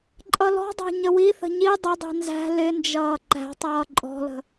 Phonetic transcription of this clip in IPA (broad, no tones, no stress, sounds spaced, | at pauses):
ǃʼ ʌ l ɔ̤ dˤ æ̤ ɲ ə w i θ ə̤ ɲ i dˤ ə dˤ i̤ n z æ̤ l ɪ n d͡ʒ ʌː ǃ æ̤ tˤ ʌː ǃʼ ɔ̤ l ə̤